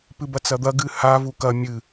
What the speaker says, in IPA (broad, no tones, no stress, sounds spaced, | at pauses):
p ɨ b ɐ t͡s ɐ d̪ ɐ ɡ ɨ h a v u k ɐ mʲ ɨ